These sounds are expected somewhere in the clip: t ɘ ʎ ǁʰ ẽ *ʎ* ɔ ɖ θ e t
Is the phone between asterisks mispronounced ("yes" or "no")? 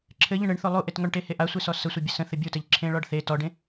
yes